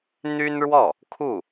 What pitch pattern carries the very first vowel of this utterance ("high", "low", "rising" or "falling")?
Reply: high